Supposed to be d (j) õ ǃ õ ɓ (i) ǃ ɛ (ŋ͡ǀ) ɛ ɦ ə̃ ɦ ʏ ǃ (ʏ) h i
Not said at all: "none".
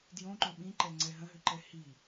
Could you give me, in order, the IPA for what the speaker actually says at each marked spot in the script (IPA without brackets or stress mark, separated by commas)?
j, ĩ, ŋ͡ǀ, ɛ